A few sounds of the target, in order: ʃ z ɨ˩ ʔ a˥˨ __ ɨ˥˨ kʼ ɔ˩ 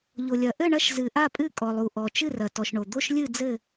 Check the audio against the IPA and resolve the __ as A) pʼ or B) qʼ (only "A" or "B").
A